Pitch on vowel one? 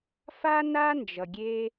high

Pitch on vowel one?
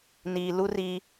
low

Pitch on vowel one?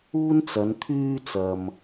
high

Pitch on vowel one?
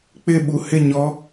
falling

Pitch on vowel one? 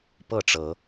falling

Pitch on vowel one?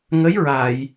rising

